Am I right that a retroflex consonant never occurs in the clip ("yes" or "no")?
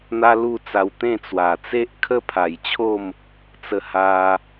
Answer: yes